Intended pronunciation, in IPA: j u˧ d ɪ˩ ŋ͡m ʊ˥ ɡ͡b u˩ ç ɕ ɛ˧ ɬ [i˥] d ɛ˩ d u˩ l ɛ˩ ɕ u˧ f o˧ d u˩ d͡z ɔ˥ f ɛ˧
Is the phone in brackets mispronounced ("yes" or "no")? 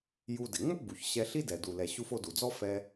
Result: no